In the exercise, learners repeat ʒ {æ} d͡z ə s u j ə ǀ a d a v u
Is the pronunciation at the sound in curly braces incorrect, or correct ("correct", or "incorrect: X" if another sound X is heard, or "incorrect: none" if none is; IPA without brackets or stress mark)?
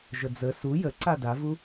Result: incorrect: ə